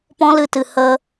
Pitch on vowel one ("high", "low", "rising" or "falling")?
high